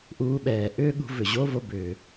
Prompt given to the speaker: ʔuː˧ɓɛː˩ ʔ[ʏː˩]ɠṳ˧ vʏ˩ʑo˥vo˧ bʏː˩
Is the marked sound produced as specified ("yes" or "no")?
no